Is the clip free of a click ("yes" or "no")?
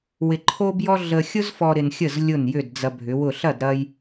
no